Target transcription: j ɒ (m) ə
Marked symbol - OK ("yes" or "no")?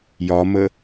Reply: yes